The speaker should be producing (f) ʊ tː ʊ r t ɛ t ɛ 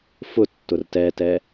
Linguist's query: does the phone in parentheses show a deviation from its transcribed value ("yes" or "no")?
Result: no